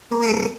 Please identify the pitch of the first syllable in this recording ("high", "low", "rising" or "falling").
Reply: low